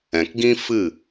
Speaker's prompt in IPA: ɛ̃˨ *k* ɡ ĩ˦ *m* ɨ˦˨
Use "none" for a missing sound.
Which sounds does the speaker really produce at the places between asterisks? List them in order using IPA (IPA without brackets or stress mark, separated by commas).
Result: k, f